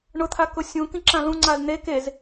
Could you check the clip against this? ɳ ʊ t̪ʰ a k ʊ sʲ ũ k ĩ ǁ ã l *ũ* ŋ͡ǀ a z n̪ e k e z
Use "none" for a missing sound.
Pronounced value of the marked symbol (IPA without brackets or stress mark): ũ